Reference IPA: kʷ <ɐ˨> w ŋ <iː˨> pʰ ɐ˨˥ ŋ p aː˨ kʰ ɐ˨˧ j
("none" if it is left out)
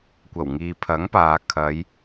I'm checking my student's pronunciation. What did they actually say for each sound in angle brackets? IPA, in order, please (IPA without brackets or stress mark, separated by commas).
ɐ˨˩, iː˨